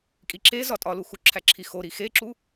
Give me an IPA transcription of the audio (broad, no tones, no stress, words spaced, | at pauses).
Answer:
kʼiǁezɒ tʼɒlu xuǁʰæǁʰixo ɾixeǁu